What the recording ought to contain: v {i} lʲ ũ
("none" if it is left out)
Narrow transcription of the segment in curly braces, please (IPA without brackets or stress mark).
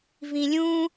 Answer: ĩ